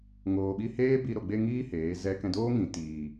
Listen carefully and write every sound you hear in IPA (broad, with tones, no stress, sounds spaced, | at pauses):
ŋ oː˨ ɓ i˧ h eː˦ b i˧ ɾ o˨ ɡ͡b e˧ ŋ iː˦ h eː˨˦ z ɛ˦ k ɛ̃˧ d oː˦ ŋ ĩ˨ t iː˨